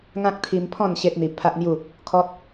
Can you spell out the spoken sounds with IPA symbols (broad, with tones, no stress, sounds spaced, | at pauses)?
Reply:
ŋ ã˦ k̚ t̪ʰ i˧ m pʰ ɔ̃˥˧ n ɕ e˦ t̚ n̪ i˧ pʰ a˦ ʔ n̪ j u˥˧ | kʰ ɔ˦ t̚